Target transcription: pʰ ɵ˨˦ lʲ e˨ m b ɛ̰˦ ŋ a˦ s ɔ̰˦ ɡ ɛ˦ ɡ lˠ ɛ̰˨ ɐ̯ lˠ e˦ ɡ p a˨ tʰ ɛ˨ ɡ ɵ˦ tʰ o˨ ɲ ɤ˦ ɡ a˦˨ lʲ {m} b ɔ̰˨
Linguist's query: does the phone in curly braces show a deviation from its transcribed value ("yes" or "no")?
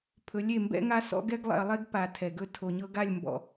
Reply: no